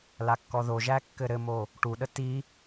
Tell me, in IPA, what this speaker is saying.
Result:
lakːɔðoʒæ kːɘɾɘmo | ʈuɗə ti

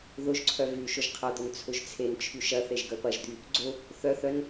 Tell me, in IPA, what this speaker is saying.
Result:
ðʊʒǀʰœ vyʃʊʒ qʰɐd̪ʊn t͡sʰʊʒt͡sʰent͡ʃʰy ʃɐθeʒ ɡœpɐʒd̪y | ɡ͡ǀʊ | θœθœn

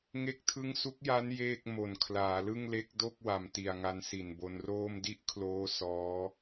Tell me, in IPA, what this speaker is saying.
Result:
ŋe˥˩k̚tʰɯ˥˩ŋ su˦˥k̚ja˦˥n jeː˥˩k̚ mo˨˩n kʰlaː˩˦lɯ˥˩ŋle˦˥k̚ do˥˩k̚ wa˨˩mti˨˩a̯ŋa˧n si˨˩nbo˧nroː˥˩m di˥˩ʔkʰloː˦˥ sɔː˦˥

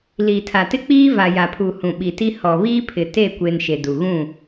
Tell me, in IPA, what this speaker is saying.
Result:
liː˨tʰa˨tɪ˦ k͡piː˦ va˨ ja˨pʰu˨ hũ˨ɓi˨ti˦ hɔ˨ βiː˦pʰɪ˨ te˦˨kʷe˨n ʃe˨du˨ɣũ˦˨

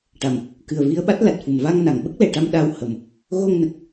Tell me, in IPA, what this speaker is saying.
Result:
ʈa˨˩m | kɨ˨˩ə̯vi˧ə̯ɓa˦˥t̚ la˨˩t̚fu˨˩m va˧ŋ na˨˩˨ŋɓə˦˥k̚lɛ˨˩˨ʈa˧m ɗa˧whə˨˩m | ɣo˧ŋnə˨˩k̚

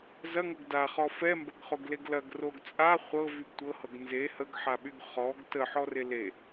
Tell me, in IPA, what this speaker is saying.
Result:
zɐŋɤɡ daχɔ fɛmbɐɡχoɡleɡ lɐɡroɡ t͡sʼa χʷɤvyɡ tʷɤhɤɡ nze həɡħaɓyɡ χɔɡ təħɔre le

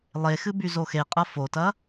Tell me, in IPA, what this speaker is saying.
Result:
lˠexɨ byzoxeqʼɐ fotɐ

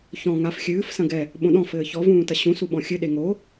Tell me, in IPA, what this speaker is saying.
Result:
çɔ̃ ŋaf xʲɨːf sɐ̃ɡɛ | ɓõɗɔ̃ fɘːçɔ vũːtɐɕũ suɓɔ̃xʲɨ ɗeŋo

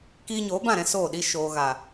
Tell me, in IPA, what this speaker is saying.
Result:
kiː˧ɲoː˨˦bã˦˨ɾɛ̃˧ soː˦˨ɗi˦ ʃoː˨ ɣa˨

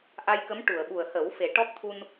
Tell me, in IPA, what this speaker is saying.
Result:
ʔa˧jkə˧˥m ʈu˨˩˨ə̯ɓu˨˩ə̯hə˨˩˦wfe˨˩˦ ʈɔ˦˥k̚t̪ʰu˧n

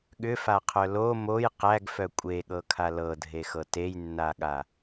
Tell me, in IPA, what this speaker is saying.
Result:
ɠʏfaqʰœ lo moj qæɡfœ kʷʼeɠɤkʰa lɤdʱexɤ tejnːaɠa

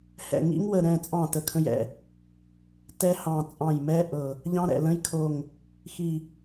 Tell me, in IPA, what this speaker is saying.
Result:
hɛ̰˧˩ ŋḭ˦˥ŋwə˧˩ ɾɛ̃˧˩t͡sʼɑ̃˧˩ tə˧˩kʰə̃˦˥jɛ̰˧˩ | tɛ˦˥hɑ̃˧˩ t͡sʼɑ̃˧˩jmɛ˦˥ ʔɤ˧˩ | ʎɑ̃˦˥ɾɛ̰˧˩lə̃˦˥j kʰo˧˩ŋ | xi˧˩

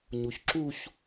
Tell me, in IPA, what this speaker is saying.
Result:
ɲuçǁuç

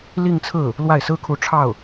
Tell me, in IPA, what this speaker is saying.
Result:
li˥˧ŋt͡sʰɹ̩˥˩ | lwa˥˩ɪ̯sɹ̩˥kʰu˧˥ ʈ͡ʂʰɑ˥˩ʊ̯

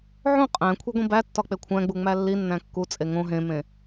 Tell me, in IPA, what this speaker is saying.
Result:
ʕõ qʼæ̃ kʷʰeɡʷĩbætːɒ k͡pekʷʰæ̃ɡ͡bu ŋ͡mælːinːæ̃ kːut͡sʼe ŋõ ɦẽmẽ

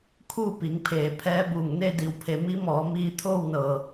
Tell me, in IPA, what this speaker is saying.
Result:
kʰuː˥˨pi˩˧ŋpʰeː˩ pʰɛː˧˥buː˧˩ŋ ne˥˨di˧˩wpʰe˩˧ mi˧˥mɔː˩˧ miː˧t̪ʰoː˥˨wnɤː˩

